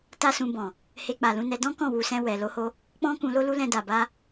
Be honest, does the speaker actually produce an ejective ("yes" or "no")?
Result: no